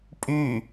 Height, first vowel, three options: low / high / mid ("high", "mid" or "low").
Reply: high